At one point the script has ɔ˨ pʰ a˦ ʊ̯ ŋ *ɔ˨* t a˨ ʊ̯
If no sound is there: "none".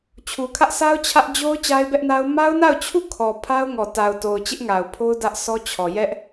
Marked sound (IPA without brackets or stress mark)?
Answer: ɔ˨